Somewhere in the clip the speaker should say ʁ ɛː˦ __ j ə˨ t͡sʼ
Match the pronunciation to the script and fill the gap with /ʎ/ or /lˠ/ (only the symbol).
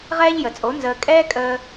ʎ